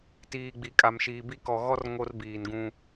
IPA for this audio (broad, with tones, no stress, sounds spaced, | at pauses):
t iː˨ ɡ͡b i˨ kʼ a˨ m ʃ iː˨ b i˦ k ɔ˨ ɣ ɔ˦ r ŋ o˦ r b iː˨ n ɡ ũ˦